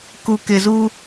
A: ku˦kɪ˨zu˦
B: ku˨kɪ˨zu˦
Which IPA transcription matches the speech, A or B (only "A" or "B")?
B